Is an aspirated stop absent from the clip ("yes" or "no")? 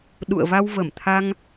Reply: no